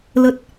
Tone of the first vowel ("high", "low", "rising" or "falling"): low